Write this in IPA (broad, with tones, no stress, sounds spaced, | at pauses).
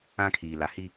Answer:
ã˦ kʰ iː˨ l a˨ h i˦